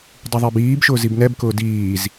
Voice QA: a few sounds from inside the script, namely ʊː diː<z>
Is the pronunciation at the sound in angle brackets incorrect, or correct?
correct